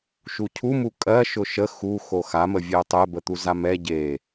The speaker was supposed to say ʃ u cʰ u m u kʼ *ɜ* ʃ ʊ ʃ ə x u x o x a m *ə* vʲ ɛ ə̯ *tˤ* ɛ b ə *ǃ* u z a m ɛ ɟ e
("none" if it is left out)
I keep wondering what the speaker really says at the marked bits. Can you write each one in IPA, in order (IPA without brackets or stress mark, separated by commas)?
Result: ɜ, ə, tˤ, t̪